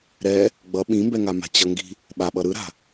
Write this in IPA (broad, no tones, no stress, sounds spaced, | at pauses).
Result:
ɾ ɛ | ɡ͡b ʌ ɓ ĩ m b ɛ ŋ a m a̤ t͡ɕ ʌ ŋ ɡ i̤ | ɓ a ɓ ʌ ɾ ɯ ɾ a̤